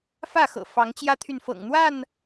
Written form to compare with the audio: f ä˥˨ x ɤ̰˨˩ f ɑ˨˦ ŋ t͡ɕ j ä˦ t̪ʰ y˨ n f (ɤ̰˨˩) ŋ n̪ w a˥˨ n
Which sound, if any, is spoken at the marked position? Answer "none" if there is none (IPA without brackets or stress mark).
ɤ̰˨˩